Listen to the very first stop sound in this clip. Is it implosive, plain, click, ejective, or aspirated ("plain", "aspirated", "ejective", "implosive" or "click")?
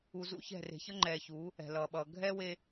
click